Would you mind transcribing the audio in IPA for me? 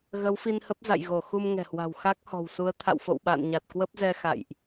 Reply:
ɣ ə˨˦ w f i˧ n h ə˦˥ p̚ z a̰˧˨ j ɣ o˧˩ x u˧ m ŋ ɛ̤˨˩ h w a̤˨˩ w x a˦˥ k̚ h ɔ̤˨˩ w s u˨˦ ə̯ t̪ʰ a̰˧˨ w f o̰˧˨ w ɓ a̰ː˧˨ n ɲ a˨˩ t̚ k w ə˦˥ p̚ z ɛ˧ x a̰˧˨ j ʔ

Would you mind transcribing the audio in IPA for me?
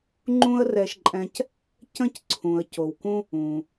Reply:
ŋ͡ǃ ũ˥ ə̯ r ɛ˧ ʃ ǃʼ ɛ̃˧ c | c ə̃˥˩ c ǀʰ ũ˩ ə̯ c o˩ w k ũ˧ | ũ˩

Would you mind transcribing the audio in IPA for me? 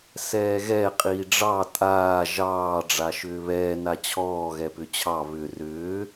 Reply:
s ɛː ɣ ɛ qʼ iː ɖ͡ʐ ɑ tʼ aː ʒ ɑː ɖ͡ʐ a ʃ ʏː β ɛː n a t͡ɕʰ ɔː ɣ ɛ p ʏ t͡ɕʰ ɑ β ʏ r ʏː

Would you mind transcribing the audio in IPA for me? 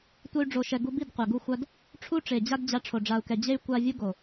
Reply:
tʷ ɛ˦ y̯ ɖ͡ʐ o˨ ʃ ɛ˨ ɡ u˧ b i˦˨ d qʷ ɛ˨ ɡ u˦ xʷ a˦ d | ʈ͡ʂʰ u˦ ʈ͡ʂ e˨ d͡ʑ a˦ d d͡ʑ a˧ ʈ͡ʂʰ o˨ ɖ͡ʐ a˨ u̯ k ɛ˨ d͡ʑ e˦ y̯ kʷ a˦ vʲ u˦ ɡ o˨

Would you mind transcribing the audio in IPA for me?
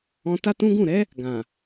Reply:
ɔ̃˧ t a˦ t ũ˦ ɡ ũ˦˨ ɾ ɛ˨˦ | ɡ ã˨

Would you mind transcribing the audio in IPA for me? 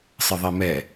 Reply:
sˤ ə ðˤ ɛ m ɛ

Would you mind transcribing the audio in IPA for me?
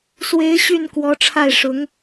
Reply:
s w e˧˥ ɪ̯ ɕ y˥˩ n k w ɔ˧˥ ʈ͡ʂʰ a˥˩ ɪ̯ ʂ ʊ˧˥ ŋ

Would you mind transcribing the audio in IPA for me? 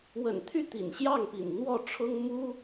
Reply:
w ə̰˨˩ n t̪ʰ y˥˩ t̪ ḭ˨˩ n ɕ j ɑ˥˩ ŋ p ḭ˨˩ n n̪ w ɔ˥˩ ʈ͡ʂʰ ʊ˥ ŋ m u˥

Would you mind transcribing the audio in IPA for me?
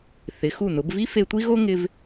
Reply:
θ ɪ˩˧ x u˧˩ n ʊ˩˧ b v i˥ f e˧ tʷ i˥ ɣ o˥ ŋ ɪ˧ v

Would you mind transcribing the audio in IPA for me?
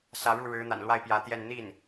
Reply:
s ä˧˥ ɻ u˥˩ ɻ ɻ̩˧˥ n̪ a̰˨˩ n l w a˥˩ ɪ̯ p j ä˧˥ t̪ j ɛ˥˧ n n̪ i˥˩ n

